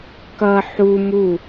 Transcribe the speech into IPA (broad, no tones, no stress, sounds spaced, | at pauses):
k ʌ ħ u m u